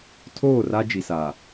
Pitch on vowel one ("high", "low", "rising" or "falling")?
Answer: falling